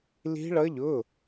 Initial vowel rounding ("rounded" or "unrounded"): unrounded